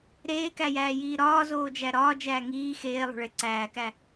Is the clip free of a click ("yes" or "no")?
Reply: no